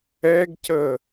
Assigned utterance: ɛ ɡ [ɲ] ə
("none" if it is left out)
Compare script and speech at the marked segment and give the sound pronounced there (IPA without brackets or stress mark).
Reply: c